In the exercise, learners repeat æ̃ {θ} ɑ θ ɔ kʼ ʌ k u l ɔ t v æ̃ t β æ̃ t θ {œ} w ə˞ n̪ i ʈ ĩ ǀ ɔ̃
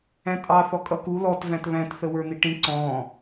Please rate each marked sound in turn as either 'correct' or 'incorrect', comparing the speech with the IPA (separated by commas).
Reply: incorrect, incorrect